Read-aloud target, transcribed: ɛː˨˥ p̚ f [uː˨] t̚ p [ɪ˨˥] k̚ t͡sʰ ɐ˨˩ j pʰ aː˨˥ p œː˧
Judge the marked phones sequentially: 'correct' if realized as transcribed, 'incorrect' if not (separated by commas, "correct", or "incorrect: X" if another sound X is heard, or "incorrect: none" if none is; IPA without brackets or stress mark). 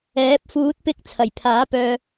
incorrect: uː˨˥, incorrect: ɪ˧